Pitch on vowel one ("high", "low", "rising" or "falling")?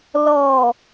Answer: low